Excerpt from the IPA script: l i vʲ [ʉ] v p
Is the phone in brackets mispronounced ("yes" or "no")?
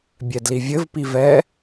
yes